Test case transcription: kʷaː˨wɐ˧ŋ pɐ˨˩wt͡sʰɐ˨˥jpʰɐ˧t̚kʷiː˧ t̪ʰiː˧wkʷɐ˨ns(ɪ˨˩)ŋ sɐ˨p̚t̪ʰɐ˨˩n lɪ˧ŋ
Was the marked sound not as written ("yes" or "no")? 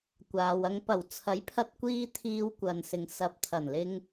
yes